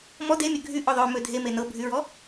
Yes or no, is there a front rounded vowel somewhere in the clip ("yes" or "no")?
yes